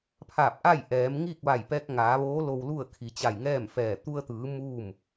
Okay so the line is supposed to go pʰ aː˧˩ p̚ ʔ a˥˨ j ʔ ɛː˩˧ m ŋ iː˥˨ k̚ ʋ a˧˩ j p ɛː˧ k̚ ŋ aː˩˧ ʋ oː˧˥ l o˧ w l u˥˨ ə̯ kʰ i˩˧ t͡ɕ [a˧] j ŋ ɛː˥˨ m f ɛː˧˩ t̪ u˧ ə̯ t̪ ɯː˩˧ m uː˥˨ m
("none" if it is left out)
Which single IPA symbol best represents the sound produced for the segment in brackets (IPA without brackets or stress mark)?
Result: a˧˩